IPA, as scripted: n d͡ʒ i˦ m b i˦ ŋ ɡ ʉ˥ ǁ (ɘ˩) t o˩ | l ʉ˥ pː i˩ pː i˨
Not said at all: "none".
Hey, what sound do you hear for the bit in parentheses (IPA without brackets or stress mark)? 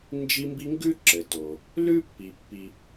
ɘ˩